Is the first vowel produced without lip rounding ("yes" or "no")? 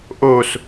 no